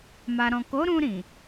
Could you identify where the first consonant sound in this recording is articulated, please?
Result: labial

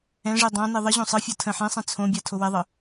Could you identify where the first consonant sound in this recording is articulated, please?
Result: retroflex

